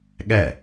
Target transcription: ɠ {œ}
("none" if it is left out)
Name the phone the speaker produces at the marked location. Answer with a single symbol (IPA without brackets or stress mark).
ɛ